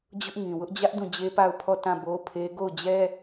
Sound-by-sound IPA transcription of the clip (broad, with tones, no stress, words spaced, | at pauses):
d͡ʑʊ˦ʔ ŋĩ˨wʊ˦ʔ d͡ʑä˦ʔ dũ˦˨d͡ʑe˦pa˦˨ʊ̯ pʰɔ˦˨ tã˦˨bo˦pʰe˦ ɡo˦˨ʊ̯ d͡ʑɛ˦